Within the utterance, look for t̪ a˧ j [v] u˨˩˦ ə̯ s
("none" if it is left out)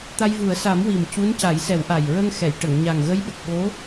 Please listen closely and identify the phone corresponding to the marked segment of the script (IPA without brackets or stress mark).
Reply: v